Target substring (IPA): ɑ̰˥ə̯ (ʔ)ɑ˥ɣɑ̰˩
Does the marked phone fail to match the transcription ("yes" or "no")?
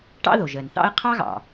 yes